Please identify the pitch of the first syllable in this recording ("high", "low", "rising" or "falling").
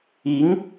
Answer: rising